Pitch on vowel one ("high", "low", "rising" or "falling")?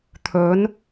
rising